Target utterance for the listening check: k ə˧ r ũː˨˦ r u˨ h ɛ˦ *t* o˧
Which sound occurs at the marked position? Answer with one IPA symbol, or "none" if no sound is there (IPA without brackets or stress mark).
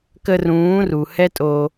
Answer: tʼ